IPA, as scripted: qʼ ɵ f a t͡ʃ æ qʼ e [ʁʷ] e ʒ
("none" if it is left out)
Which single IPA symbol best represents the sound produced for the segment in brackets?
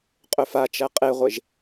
ʁʷ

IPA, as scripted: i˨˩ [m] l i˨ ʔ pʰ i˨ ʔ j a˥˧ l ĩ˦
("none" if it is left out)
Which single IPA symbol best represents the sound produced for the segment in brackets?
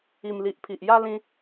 m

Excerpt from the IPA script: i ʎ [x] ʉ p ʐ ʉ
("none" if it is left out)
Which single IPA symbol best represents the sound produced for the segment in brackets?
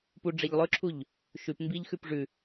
x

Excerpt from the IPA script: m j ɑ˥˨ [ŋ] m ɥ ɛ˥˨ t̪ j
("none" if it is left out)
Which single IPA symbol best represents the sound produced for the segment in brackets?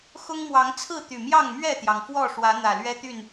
ŋ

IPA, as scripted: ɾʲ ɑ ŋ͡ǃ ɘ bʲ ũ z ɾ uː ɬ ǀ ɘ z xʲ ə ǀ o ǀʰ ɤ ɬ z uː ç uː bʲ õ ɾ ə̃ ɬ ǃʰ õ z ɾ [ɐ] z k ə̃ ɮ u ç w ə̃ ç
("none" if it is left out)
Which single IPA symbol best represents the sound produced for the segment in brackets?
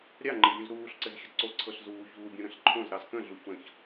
ɑ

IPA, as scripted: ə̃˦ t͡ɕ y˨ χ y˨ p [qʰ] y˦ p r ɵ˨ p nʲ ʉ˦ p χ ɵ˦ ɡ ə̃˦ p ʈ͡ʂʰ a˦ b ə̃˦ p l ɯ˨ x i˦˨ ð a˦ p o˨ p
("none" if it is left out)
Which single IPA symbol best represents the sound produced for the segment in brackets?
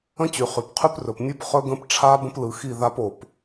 qʰ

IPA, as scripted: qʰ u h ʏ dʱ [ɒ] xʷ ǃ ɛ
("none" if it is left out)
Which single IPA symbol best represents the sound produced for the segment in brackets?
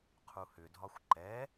ɒ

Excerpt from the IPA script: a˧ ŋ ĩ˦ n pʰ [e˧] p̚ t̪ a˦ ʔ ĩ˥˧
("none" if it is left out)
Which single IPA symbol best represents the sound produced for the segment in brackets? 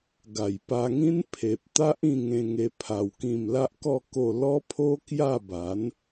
e˨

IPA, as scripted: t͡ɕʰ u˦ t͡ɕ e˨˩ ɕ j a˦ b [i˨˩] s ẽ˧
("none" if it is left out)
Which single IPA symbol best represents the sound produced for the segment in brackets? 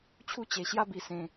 i˨˩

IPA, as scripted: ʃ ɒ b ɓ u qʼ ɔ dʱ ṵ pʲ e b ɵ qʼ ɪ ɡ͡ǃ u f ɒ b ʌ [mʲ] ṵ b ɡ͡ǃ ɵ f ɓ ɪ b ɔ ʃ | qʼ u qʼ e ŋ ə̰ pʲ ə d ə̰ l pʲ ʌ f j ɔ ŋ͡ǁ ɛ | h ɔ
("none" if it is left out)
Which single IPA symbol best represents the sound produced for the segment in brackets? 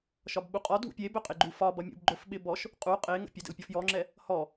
mʲ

